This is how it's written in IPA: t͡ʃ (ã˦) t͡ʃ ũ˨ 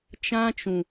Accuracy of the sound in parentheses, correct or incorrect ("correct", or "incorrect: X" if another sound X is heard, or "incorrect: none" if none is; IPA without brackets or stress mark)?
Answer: correct